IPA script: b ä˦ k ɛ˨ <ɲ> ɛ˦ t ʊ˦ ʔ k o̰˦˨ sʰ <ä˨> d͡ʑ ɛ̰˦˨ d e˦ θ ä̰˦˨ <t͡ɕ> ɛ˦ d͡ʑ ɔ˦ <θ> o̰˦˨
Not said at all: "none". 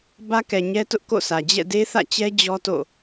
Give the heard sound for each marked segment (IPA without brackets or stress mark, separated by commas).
ɲ, ä˨, t͡ɕ, t